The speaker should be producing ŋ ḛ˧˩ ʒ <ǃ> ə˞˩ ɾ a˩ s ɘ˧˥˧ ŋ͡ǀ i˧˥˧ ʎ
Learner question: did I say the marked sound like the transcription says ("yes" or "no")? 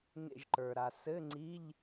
yes